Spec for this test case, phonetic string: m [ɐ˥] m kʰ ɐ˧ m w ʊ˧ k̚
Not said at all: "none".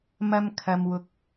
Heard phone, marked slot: ɐ˥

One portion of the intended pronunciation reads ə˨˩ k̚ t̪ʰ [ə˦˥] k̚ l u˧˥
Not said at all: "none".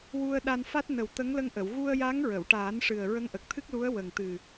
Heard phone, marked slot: ɨ˦˥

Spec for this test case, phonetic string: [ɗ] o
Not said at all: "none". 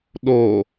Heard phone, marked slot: ɗ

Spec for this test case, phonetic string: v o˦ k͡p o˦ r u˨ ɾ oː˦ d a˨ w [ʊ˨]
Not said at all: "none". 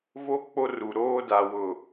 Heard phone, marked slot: ʊ˨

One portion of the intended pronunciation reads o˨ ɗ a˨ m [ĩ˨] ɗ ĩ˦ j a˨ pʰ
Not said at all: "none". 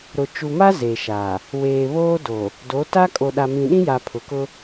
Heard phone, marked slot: ĩ˨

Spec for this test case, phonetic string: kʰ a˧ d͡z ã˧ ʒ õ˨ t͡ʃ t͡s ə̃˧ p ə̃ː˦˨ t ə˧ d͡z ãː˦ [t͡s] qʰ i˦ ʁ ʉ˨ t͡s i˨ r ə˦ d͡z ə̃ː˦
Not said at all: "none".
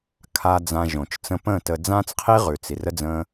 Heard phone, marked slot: t͡s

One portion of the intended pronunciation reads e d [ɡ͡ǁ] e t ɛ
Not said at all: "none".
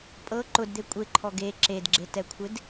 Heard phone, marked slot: ɡ͡ǁ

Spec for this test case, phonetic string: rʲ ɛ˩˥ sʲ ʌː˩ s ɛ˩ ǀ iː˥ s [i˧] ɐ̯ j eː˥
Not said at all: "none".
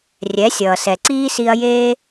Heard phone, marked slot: i˧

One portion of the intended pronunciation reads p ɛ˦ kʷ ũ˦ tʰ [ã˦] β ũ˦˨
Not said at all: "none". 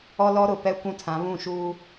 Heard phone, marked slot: ã˨˦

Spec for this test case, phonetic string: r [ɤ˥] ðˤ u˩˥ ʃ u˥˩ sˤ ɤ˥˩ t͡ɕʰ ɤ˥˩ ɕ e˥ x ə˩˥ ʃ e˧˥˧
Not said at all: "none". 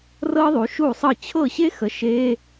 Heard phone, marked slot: ɤ˥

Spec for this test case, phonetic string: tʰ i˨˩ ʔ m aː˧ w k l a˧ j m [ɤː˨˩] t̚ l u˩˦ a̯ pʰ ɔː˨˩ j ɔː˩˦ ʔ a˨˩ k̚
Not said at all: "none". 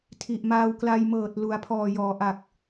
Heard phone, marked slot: ɤː˨˩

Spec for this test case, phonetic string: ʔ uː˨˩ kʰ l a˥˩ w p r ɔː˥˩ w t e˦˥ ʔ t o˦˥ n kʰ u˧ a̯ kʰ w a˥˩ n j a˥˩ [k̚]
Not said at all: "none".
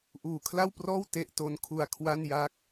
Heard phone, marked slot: k̚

